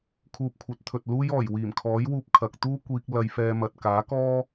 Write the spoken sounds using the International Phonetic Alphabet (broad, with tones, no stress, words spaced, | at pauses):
kʰuː˧p̚kʷʰɐ˨˥t̚t̪ʰɵ˨t̚ luː˥jɔː˨˩j wiː˨˩mkʰɔː˨˥jwuː˧p̚ kʰɐ˨k̚t̪uː˥ kʷiː˧k̚ lɐ˧jfɛː˧mɐ˨t̚ kaː˨˥kɔː˥